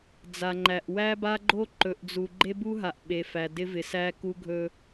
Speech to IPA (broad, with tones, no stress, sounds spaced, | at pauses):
d͡z a˨ ŋ͡ǃ æ˨ ʔ w æ˦ b a˦ ɡ͡ǃ o˦ ǃ ɵ˨ ʔ d͡z u˨ ɡ͡ǃ e˦ b u˦ ɦ a˨ ʔ ɓ e˨ f æ˨ d ɪ˦ v ɪ˨ s æ˦ k u˦ ɡʱ ɵ˦